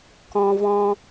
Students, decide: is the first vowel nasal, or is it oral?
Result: nasal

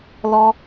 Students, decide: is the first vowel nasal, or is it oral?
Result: oral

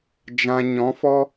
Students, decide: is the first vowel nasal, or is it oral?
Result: nasal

